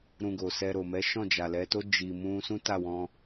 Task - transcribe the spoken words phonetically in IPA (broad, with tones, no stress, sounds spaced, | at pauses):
ɾ ũ˧ ɡ o˨ s ɛ˧ ɾ o˨ m ɛ˨˦ ʃ ɔ̃˦˨ d͡ʒ a˨ l ɛ˨˦ t o˦ d͡ʒ i˧ m ũ˦ s ũ˦ t a˦˨ w ɔ̃˧